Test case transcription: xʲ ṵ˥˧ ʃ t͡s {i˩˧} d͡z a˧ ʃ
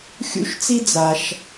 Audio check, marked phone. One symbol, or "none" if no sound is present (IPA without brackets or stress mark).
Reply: i˥